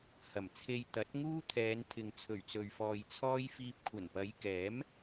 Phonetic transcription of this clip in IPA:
h ɐ˨˩ m t͡sʰ e˧ j t̪ ɐ˨˥ t̚ ŋ uː˥ t̪ʰ ɛː˨˧ n t̪ʰ ɪ˨ ŋ t͡sʰ ɵ˨˩ ɥ t͡s ɵ˨ ɥ f ɔː˨ j t͡sʰ ɔː˥ j f iː˧ p̚ kʷʰ ɐ˨˩ n p ɐ˨˧ j k ɛː˨˥ m

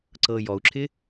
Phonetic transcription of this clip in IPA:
ǀ ɤ j ɔ u̯ ǁʰ ɪ

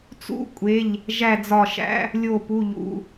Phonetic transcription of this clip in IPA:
t͡s ṵ˧˥˧ kʷʼ e˩˧˩ ʎ | ʒ æ˧˩ d͡z ɒ˧˩ ʃ æ̰˧˥˧ | lʲ o˧˩ p u˩˧˩ ʎ ṵ˩˧˩

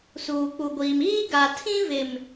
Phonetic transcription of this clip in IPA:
s uː˨ k͡p u˨ ɡʷ iː˨ m iː˦ ɡ a˨ tʰ ĩ˦ v ɪ˨ m

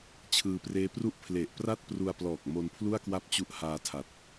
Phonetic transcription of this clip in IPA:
t͡ɕʰ ɯː˧ p r eː˦˥ p r u˥˩ ʔ pʰ l e˨˩ ʔ p r a˥˩ t̚ p r u˧ a̯ p l ɔː˨˩ k̚ m o˧ n pʰ l u˥˩ a̯ k w a˥˩ p̚ t͡ɕ u˦˥ ʔ h aː˧ tʰ a˨˩ t̚

